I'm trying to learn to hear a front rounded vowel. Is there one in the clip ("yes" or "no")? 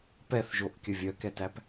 yes